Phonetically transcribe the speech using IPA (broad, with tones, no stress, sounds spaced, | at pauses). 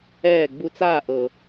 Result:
ɛː˦˨ ɡ͡b u˧ t͡s aː˦˨ ʔ ɤ˨